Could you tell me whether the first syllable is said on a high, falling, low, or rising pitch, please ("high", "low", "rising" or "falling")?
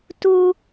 high